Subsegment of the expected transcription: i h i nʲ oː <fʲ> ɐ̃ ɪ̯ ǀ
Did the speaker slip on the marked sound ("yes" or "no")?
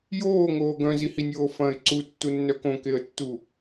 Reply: yes